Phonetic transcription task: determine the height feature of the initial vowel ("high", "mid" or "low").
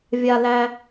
low